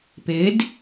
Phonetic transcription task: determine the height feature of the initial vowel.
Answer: high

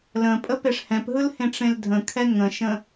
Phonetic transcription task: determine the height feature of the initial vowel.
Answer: mid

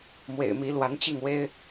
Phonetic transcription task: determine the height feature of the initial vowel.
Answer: mid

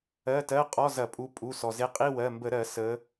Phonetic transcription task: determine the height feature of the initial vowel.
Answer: mid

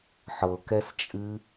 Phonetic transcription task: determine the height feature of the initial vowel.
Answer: mid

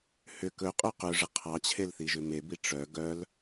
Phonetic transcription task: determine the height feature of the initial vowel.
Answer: high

